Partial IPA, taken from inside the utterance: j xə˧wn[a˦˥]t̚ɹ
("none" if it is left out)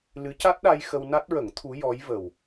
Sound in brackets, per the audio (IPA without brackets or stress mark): a˦˥